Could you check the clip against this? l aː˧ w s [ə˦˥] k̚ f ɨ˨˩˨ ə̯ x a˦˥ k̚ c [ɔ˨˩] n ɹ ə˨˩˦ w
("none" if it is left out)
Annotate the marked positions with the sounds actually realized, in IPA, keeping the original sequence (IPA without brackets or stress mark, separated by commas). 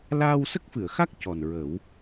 ə˦˥, ɔ˨˩